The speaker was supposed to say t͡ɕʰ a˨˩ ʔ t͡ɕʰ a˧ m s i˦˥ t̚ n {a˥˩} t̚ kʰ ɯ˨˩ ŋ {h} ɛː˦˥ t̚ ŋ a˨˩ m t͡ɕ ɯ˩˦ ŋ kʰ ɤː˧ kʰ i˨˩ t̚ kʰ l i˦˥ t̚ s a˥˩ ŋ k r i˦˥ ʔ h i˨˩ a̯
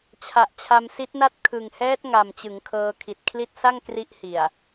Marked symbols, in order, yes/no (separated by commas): yes, yes